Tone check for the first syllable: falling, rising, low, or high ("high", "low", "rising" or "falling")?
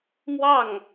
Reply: falling